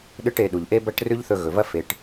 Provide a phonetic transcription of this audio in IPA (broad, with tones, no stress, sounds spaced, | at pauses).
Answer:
ɗ ɨ˥ ʈ e˧ ɗ u˩ ʎ ʔ e˥ b ɐ˥ ʈ r ʉ˥ ʎ θ ɵ˧ ɣ ɵ˩ v ɐ˥ f e˩ ʈ